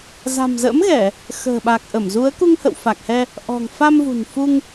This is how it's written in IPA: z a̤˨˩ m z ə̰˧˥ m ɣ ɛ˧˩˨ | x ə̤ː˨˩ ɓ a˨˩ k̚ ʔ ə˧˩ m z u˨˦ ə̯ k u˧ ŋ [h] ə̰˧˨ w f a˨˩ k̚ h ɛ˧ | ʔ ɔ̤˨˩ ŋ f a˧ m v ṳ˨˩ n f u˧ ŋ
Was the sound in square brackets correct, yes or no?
yes